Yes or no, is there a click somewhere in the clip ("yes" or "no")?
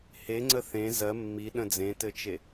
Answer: yes